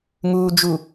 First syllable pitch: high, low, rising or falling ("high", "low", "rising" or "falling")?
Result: low